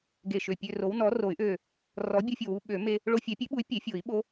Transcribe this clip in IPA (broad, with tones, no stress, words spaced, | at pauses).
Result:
ɡe˧˩ʃø˧˩ pʲø˧ro˨˥w nɔ˨˥ro˨˩˦y̯ʔø˧˩ | rɔ˨˥bʲu˧fʲo˧˩wu˧ ɓø˨˩˦me˧ | ɭo˧fʲɛ˨˩˦pʲø˨˥ɓu˨˥y̯ pʲe˨˩˦fʲo˨˩˦i̯ ɓo˨˥